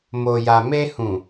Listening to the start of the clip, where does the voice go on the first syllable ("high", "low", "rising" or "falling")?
low